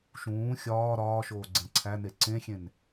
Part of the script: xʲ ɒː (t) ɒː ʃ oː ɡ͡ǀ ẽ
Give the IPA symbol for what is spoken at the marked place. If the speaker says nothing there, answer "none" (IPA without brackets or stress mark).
ɾ